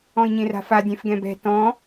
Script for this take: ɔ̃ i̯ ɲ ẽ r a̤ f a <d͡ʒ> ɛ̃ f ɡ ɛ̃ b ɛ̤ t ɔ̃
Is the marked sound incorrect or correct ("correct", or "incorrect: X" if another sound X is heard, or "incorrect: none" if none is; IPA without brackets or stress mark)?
incorrect: dʲ